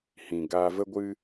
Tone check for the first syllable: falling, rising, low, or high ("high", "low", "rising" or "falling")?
low